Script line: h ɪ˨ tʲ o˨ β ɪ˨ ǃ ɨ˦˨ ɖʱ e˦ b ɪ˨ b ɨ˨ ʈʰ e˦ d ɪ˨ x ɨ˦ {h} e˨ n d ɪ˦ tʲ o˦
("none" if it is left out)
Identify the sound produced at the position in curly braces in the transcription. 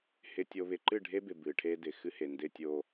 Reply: h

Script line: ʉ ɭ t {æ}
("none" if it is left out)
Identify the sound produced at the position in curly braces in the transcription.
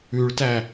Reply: æ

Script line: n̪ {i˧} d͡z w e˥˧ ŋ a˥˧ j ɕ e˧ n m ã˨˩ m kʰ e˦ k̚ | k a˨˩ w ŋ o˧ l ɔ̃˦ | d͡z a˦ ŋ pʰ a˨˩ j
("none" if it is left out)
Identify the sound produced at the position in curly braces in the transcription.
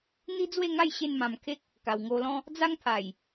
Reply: i˦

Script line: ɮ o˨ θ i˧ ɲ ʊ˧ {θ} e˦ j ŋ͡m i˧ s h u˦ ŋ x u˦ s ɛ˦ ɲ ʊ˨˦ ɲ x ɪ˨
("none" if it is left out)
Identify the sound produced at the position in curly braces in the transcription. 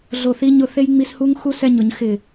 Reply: θ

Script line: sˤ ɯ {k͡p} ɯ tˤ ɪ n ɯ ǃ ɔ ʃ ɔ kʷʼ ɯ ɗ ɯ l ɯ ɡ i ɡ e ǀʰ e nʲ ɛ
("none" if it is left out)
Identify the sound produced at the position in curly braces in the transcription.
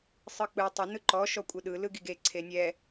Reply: k͡p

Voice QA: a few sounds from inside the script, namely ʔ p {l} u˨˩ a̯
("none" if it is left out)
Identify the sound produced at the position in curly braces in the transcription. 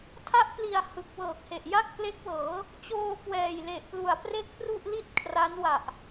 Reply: l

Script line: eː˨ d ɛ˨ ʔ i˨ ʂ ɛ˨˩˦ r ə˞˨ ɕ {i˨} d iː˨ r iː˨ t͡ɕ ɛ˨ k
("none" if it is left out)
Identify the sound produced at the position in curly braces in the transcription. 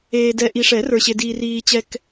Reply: e˨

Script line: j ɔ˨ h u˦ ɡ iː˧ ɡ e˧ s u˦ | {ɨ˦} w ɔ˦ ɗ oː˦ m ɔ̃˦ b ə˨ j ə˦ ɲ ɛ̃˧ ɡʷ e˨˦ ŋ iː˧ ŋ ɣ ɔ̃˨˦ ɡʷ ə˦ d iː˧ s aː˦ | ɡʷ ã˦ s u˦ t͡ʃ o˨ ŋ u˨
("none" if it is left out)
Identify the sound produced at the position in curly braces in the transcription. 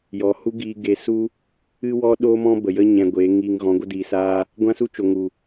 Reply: ɨ˦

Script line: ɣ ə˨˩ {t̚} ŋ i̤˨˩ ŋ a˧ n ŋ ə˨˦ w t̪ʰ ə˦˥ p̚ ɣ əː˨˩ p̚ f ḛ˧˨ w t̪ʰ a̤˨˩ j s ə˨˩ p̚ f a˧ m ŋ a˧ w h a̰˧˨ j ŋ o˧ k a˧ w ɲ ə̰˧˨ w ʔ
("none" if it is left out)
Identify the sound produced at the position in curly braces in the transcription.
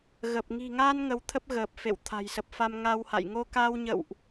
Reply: p̚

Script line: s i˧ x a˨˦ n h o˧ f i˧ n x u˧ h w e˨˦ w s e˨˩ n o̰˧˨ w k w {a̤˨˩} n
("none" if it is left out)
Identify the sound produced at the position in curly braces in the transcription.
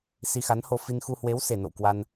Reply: a˧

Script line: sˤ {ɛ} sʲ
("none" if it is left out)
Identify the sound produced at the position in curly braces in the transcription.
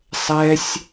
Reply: ɛ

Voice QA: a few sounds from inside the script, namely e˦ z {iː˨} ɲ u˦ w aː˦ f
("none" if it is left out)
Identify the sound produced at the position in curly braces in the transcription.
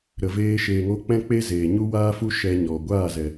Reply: eː˨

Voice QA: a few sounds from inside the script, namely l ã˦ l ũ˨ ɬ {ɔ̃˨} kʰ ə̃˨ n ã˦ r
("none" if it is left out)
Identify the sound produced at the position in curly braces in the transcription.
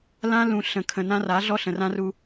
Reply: ə̃˨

